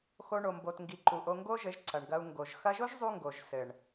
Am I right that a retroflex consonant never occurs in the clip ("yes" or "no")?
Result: no